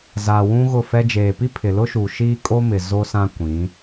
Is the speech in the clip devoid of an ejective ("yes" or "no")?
no